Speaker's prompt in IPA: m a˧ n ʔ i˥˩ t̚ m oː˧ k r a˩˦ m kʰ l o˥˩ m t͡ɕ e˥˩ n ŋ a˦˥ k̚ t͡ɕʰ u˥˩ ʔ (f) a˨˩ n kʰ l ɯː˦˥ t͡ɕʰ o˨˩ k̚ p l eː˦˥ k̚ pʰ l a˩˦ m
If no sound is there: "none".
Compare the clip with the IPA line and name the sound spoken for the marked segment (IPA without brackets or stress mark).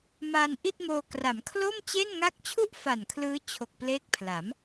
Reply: f